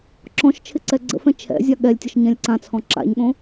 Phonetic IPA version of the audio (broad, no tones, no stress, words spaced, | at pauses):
ǁɔ̃ʃt͡ʃʰɪ ǀɛɡ͡ǀə̰fɛ̃ t͡ʃʰɛ̰ zʲaɠɛlʲtʲəʃ ɲɛ̃lʲǀãt͡sʰɔ̃ ǁa̰ɲɠõ